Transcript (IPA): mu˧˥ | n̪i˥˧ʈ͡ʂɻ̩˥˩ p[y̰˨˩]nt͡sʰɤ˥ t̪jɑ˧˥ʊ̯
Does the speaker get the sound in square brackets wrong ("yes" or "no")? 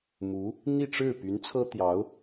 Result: yes